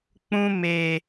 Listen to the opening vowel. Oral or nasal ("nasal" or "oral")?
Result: nasal